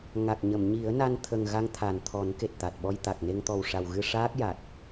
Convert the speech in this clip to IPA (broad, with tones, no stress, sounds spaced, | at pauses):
ŋ a˨˩ k̚ ɲ ə˨˩˨ m ɲ i˨˩˦ ə̯ n a˧ n t̪ʰ ə˨˩ ŋ ɣ a˧ ŋ t̪ʰ a˨˩ n t̪ʰ ɔ˨˩˦ n k e˨˩ t̚ t̪ a˨˩ t̚ ɓ ɔ˧ j t̪ a˨˩ k̚ n e˧ ŋ t̪ ɔ˨˩ w ʂ a˨˩ w ɣ ɨ˧ ʂ aː˦˥ k̚ j a˨˩ t̚